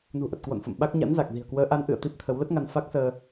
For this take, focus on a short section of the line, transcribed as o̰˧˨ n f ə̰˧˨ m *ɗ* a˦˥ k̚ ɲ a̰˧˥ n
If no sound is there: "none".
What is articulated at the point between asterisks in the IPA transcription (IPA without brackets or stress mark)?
ɓ